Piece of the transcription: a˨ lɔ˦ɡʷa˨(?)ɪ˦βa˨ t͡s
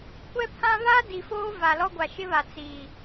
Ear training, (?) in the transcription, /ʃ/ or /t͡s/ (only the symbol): ʃ